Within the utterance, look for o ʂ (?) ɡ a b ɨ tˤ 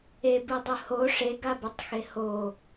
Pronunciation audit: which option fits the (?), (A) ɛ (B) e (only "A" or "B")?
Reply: B